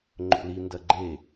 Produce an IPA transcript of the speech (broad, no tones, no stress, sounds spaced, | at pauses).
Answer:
ŋ͡ǃ o̰ l i n d ɐ ɡ͡ǃ e